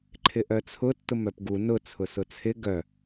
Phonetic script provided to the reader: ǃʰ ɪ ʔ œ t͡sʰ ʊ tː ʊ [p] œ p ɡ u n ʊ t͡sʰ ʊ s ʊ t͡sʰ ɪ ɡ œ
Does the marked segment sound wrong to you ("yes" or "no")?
yes